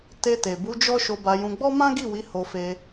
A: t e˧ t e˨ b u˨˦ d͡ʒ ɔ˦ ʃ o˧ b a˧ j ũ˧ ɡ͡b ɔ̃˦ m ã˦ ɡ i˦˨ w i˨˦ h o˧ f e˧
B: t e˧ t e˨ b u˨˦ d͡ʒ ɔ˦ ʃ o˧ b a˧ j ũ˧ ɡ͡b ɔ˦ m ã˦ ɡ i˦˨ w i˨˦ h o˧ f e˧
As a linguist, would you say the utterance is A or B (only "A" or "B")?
B